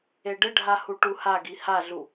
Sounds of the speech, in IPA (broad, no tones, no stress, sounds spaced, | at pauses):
e ɖ ɪ ɖʱ a h u ʈ u h a ɡ i h a ɮ u